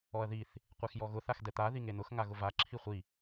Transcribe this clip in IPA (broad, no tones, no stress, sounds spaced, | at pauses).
ɔ ɐ̯ ð i θ | qʷ e x j ɔ ɣ ʊ θ a x d ɛ t̪ a ð i ŋ e n ʊ x ŋ a ɣ ʊ v a ǁʰ i χʷ i